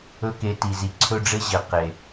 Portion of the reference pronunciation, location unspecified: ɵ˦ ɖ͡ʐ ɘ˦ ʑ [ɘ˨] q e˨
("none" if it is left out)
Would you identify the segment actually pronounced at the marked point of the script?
ɘ˨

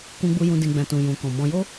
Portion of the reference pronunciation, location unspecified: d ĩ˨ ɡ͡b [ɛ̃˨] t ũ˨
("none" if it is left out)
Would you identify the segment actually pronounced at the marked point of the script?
ɛ̃˨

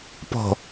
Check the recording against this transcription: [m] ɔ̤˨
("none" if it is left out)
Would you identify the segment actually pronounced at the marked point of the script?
p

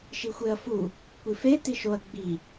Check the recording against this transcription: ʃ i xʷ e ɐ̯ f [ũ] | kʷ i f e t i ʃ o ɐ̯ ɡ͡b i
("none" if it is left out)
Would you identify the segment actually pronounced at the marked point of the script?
u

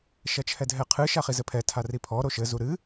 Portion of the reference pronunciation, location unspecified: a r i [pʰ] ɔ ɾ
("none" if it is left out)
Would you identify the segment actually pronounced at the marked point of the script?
pʰ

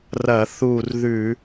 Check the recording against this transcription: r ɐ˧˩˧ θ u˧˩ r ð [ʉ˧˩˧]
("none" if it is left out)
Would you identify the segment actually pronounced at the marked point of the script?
ʉ˧˩˧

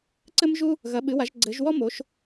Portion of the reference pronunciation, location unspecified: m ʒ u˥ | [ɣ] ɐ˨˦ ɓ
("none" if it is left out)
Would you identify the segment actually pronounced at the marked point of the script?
ɣ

